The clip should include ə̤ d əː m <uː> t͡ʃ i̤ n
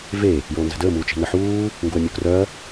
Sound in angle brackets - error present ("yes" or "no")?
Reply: no